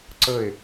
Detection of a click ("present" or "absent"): present